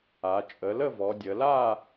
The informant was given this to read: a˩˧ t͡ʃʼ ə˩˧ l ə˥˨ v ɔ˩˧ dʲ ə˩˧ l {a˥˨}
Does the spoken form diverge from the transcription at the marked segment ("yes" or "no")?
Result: no